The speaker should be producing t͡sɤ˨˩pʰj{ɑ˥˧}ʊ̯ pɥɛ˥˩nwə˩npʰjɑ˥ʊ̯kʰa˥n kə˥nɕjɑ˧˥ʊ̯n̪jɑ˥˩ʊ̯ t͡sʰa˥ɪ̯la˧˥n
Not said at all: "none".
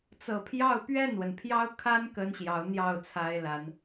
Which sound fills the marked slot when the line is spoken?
ɑ˥˧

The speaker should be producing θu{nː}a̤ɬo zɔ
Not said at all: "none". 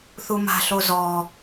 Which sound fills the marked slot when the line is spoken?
m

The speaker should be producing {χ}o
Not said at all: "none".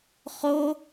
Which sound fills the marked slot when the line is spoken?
χ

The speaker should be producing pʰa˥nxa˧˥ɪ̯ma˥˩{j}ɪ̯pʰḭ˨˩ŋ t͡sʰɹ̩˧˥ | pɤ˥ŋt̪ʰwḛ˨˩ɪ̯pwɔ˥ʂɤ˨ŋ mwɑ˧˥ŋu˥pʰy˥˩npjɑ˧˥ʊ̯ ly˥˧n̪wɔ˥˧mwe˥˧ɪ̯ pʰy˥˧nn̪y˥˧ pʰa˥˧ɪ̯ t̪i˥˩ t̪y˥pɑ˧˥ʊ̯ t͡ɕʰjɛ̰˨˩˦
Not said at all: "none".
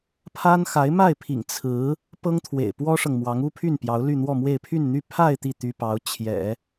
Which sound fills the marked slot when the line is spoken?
none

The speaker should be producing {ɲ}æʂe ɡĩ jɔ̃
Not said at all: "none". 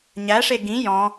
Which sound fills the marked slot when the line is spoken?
ɲ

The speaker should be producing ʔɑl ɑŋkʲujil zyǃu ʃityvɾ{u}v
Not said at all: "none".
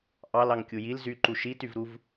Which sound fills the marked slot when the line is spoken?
u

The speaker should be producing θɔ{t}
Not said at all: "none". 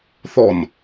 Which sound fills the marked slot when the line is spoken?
n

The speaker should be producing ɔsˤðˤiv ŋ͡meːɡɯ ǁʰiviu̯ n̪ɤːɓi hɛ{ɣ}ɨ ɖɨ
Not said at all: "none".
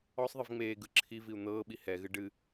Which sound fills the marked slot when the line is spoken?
ɣ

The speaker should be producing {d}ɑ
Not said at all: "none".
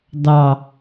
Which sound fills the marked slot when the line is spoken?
d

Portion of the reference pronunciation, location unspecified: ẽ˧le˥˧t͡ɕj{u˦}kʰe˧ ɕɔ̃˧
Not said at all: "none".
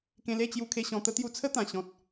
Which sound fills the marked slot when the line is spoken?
u˧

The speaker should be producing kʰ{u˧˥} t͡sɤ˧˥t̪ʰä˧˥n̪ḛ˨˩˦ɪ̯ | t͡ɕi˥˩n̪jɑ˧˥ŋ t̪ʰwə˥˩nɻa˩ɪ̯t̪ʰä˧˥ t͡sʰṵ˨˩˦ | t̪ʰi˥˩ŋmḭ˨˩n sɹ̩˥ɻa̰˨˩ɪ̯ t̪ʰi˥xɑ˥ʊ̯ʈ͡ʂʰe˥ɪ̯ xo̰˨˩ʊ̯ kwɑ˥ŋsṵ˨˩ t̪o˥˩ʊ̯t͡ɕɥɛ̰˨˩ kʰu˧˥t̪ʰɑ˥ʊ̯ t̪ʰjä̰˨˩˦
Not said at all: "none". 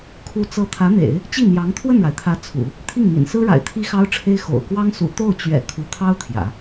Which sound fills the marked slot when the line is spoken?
u˧˥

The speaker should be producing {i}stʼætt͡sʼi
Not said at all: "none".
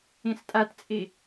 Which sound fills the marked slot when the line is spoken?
ĩ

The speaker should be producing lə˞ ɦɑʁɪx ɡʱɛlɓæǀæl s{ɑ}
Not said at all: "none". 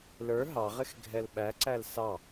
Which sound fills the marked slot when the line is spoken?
ɑ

